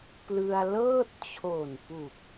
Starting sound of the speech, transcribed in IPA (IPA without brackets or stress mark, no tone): p